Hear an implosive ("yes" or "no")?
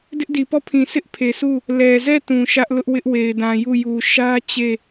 no